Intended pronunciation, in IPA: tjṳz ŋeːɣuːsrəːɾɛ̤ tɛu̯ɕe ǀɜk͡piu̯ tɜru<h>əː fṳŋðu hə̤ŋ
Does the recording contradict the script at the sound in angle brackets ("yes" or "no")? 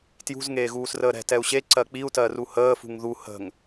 no